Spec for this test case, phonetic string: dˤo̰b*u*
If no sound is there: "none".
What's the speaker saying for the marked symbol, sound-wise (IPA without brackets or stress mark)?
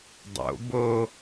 o